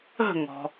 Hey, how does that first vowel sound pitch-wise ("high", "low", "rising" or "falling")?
falling